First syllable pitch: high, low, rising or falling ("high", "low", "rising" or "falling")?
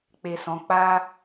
low